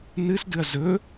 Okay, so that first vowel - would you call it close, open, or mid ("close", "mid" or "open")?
close